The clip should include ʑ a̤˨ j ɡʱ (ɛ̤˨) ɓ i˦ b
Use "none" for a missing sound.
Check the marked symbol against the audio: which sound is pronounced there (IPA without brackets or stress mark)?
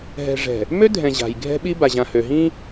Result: ɛ̤˦